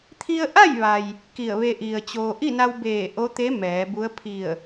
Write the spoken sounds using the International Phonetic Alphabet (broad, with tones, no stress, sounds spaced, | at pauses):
t̪ʰ i˧ ə̯ ʔ a˥˨ j ʋ a˩ j | k i˧˩ ə̯ ʋ e˧ ʔ i˩ ə̯ t͡ɕ oː˩ ʔ i˥˨ n a˧ w b eː˧˩ ʔ o˧˥ t̪ e˧˥ m ɛː˩˧ b u˧˥ ə̯ pʰ i˧˩ ə̯